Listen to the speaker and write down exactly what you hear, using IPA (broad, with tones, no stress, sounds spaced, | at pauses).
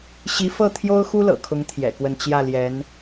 ɕ i˧˥ f ɤ˥˩ t̪ʰ j o˥ ʊ̯ x u˥ l ɤ̰˨˩ kʰ ʊ˧˥ ŋ t̪ʰ j ɛ̰˨˩ k w ə˥˧ n t͡ɕ j ä˥˩ l j ɛ˧˥ n